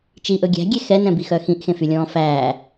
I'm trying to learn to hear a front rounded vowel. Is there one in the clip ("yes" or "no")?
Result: yes